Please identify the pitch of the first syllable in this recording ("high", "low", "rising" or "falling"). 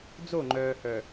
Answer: falling